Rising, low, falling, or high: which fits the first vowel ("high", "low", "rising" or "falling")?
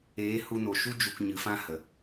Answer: rising